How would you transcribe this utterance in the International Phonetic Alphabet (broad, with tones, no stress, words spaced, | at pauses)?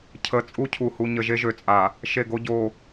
cʰə˨ t͡sʼu˦cʰu˨hu˨ɲə˨ ʒe˦ʒø˨t͡sʼa˨ | ʃe˦˨ ɡo˦ɟo˨